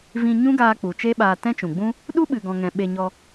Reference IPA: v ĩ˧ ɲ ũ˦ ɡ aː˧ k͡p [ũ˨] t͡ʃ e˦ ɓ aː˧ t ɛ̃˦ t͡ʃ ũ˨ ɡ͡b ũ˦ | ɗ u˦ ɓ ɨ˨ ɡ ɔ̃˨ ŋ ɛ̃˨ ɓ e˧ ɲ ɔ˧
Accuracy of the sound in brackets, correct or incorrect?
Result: incorrect